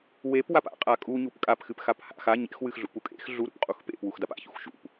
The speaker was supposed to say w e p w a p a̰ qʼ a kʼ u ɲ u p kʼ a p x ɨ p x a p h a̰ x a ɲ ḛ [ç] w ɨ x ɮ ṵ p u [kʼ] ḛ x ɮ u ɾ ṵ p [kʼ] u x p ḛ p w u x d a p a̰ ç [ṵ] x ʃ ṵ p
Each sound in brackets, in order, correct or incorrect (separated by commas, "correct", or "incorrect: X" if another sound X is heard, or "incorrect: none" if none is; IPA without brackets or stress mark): incorrect: x, correct, incorrect: qʼ, correct